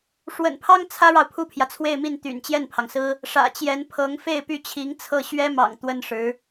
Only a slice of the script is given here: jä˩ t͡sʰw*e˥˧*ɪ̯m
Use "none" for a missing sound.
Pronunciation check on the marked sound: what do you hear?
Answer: e˥˧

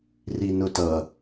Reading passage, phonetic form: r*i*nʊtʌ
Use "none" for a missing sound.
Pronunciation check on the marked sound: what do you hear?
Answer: i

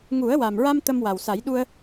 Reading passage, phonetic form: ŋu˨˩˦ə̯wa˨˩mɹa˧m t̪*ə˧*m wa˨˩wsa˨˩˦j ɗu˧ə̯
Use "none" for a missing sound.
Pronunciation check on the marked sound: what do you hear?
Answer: ə˧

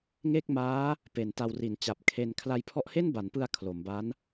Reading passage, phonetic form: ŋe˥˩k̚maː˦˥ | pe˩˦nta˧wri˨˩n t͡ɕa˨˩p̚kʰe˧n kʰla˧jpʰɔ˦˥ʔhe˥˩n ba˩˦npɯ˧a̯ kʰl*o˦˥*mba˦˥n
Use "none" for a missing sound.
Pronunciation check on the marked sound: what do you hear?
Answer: o˩˦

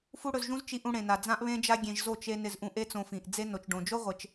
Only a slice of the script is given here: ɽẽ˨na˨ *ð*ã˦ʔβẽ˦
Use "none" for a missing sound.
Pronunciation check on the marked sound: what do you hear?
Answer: d͡z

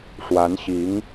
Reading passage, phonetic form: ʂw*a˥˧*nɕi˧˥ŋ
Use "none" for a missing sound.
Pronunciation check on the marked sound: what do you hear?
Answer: a˧˥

